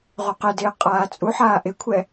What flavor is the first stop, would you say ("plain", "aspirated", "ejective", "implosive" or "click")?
plain